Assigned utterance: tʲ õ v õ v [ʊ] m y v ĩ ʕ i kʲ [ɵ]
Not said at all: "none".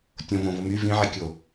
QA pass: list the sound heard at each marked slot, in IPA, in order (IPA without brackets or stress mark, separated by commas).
ʊ, o